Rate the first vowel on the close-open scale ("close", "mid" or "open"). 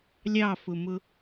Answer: open